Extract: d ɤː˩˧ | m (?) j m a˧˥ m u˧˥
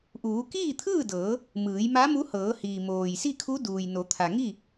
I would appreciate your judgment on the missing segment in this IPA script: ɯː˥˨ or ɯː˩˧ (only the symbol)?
ɯː˩˧